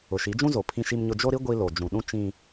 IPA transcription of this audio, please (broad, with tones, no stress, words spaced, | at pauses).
ʊ˨ ʃi˨˦d͡ʒũ˦zo˨ pʰĩ˦ʃi˦mɲʊ˦ d͡ʒo˦ɾi˦ ɡʷi˦ lo˨ d͡ʒũ˨ ɗũ˦t͡ʃĩ˦